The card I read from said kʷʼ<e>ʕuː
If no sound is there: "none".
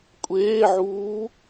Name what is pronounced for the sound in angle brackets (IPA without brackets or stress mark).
eː